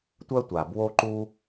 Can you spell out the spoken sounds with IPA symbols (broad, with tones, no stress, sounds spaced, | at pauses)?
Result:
tʷ œ˥ tʷ a˩ b w o˥ ǃ u˥